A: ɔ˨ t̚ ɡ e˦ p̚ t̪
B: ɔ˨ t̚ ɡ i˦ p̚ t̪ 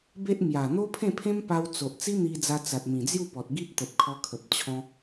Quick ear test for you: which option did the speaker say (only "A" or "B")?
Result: B